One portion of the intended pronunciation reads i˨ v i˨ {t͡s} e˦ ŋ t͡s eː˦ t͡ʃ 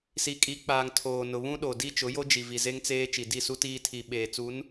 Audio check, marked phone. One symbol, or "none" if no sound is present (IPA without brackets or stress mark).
z